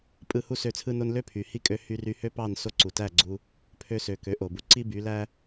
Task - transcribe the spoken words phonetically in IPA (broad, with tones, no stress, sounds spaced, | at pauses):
pʼ ɯ˧ h u˥˩ s ø˥˩ t͡sʰ ɯ˥ n o˥ n l ø˥ pʰ y˩ h i˥ kʼ ø˧ h y˧ r y˧ h ø˥ p ɑ˥˩ n s o˥ ǀ u˩ t æ˥˩ ɡ͡ǀ u˧ | pʰ ø˧ s ø˩ k ø˩˥ ʔ o˩ b u˧ ǀ i˥ b y˩˥ l æ˥